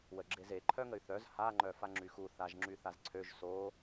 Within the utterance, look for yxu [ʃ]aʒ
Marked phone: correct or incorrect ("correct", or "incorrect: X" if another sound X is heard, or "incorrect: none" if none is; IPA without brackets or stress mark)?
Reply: incorrect: θ